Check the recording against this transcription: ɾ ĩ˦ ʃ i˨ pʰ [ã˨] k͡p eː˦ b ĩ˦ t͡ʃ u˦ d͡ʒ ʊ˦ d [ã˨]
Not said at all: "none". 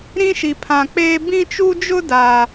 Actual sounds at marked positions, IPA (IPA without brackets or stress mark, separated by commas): ã˨, a˨